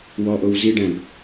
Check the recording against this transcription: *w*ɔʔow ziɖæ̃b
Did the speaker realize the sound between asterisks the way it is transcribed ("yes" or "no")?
yes